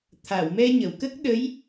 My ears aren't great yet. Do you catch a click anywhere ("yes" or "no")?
no